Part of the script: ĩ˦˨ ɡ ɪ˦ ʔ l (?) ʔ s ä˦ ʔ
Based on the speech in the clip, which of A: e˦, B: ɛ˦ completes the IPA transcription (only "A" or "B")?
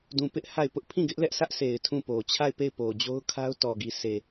B